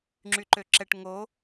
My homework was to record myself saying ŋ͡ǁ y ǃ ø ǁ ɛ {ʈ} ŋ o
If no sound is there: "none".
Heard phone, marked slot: ʈ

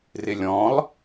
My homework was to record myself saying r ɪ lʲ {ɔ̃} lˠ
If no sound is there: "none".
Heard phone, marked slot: ɔ̃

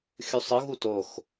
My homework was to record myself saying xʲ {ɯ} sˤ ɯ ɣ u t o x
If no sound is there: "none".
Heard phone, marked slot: u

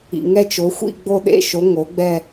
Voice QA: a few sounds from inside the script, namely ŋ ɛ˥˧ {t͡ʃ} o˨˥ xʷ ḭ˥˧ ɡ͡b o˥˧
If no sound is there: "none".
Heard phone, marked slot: t͡ʃ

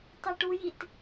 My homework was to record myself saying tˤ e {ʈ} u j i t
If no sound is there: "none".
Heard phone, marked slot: ʈ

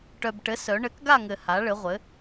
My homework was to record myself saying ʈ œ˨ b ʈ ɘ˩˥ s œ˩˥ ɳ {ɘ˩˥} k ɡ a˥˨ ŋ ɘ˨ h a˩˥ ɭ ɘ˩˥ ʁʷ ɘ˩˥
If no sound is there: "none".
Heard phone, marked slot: ɘ˩˥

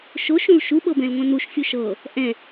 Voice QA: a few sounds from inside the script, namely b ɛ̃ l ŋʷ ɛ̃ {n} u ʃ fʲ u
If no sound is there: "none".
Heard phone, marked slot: n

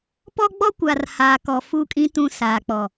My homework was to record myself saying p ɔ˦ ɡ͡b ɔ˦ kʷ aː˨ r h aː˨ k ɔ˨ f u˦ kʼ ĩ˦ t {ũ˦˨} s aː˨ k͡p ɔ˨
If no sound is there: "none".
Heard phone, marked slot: ũ˦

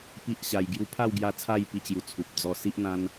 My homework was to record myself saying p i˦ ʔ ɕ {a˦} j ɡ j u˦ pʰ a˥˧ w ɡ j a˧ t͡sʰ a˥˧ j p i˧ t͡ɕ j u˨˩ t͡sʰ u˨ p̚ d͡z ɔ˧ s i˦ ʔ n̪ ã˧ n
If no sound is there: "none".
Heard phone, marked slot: a˧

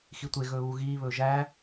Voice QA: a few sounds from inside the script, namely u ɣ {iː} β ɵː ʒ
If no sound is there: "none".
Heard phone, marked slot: iː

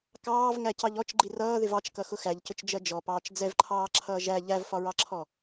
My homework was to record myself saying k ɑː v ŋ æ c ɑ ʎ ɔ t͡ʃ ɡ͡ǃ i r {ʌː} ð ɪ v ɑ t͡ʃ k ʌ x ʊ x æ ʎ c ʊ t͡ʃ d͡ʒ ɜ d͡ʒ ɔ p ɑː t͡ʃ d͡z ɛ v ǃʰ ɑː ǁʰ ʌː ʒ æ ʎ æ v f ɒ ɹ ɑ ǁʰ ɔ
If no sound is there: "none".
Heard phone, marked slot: ʌː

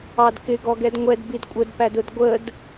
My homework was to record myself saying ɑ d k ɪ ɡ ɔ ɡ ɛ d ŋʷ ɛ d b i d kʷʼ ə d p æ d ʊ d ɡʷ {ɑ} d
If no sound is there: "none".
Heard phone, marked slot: ə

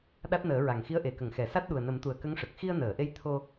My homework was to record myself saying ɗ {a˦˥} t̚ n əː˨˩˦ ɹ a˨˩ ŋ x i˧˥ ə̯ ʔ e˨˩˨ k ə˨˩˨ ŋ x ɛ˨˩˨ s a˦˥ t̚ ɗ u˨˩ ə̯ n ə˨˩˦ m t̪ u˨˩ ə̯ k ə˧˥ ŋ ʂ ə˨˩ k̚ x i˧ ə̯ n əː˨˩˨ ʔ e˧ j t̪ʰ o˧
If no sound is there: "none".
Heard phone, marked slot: a˦˥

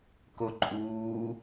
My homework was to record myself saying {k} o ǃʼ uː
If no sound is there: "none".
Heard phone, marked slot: k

